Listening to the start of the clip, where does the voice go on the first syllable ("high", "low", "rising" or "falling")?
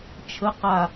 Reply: rising